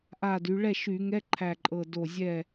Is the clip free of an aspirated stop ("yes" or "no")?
no